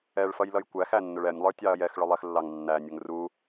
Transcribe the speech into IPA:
ɛ ɭ f ʌ j l ʌ j kʷ æ x æ nː ʊ ɭ ɛ nʲ lˠ ə˞ tʲ ɑ ɐ̯ j ɛ x ɭ ʊ lˠ ɛ x lː ɑ ŋ nː æ nʲ ʊ ŋ r u

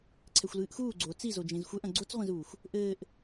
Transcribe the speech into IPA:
ǀʰ ɛ xʷ l ɨː ʔ x uː ɡ͡ǀ o t͡s i z o d͡ʒ ẽ z xʷ ɛ ʔ ɐ̃ ɡ͡ǀ o t͡s ʁʷ ẽ z uː xʷ | ʔ ɘː ʔ

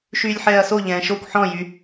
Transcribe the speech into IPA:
ʃ yː lʲ ħ ɛː ɐ̯ s o ʎ ɛ̃ː ʃ o kʷ ħ ɔ̃ j y

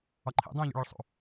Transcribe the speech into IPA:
ɒ ǃʰ ḭ dˤ ũː ʎ o̰ ɭ e ɭ sˤ ṵ

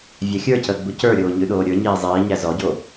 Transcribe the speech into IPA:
vʲ æ xʲ ə˞ c əː ɡ͡b u c ə˞ ɾʲ oː ɲ ʉ ɗ oː ɾʲ ə˞ ɲ iː zˤ iː ɲ æ z ɔ ɟ o

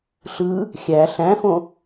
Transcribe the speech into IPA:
ɬ ɯ | xʲ æ ɬ æ̃ f õ

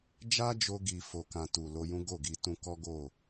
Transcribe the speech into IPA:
d͡ʒ a˦ d͡ʒ o˧ ɡ i˧ f o˧ k ã˧ t u˨ l o˧ j ũ˦ ɡ o˦˨ ɡ i˧ t ũ˧ k ɔ˦ ɡ o˦˨

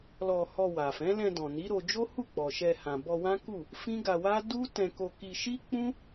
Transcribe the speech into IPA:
l ɔ˧ h ɔ˧ w a˨ f ɛ̃˨˦ l ɛ̃˧ d ɔ̃˨ n i˨˦ ɾ o˧ d͡ʒ o˦ h u˦˨ k͡p ɔ˨ ʃ ɛ˧ h ã˨ b ɔ˧ w ã˦ k u˦˨ | f ĩ˦ ɡ a˧ w a˦ d u˦ t ɛ̃˧ k o˧ k i˧ ʃ i˦ k͡p ũ˦

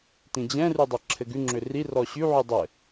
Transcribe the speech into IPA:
t ĩ d͡ʑ ɛ̃ r y dˤ ɛ ǁʰ ɘ ɡ ʉ ŋ͡ǁ ʏ r i r ɔ ɕ y ʕ ʉ dˤ ɘ

